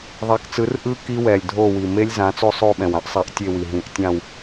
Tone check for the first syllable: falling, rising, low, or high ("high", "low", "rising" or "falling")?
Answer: rising